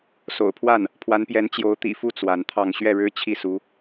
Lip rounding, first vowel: rounded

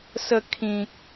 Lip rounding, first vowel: unrounded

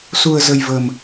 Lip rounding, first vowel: rounded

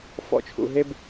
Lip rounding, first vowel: rounded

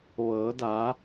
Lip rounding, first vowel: unrounded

